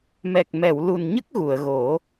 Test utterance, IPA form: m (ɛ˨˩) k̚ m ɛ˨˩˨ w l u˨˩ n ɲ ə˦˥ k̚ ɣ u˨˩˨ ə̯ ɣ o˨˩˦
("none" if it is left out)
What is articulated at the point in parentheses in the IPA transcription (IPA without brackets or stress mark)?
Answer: ɛ˨˩